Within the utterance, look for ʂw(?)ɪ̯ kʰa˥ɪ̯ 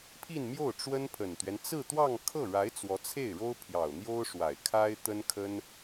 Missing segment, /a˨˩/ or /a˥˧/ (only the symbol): a˨˩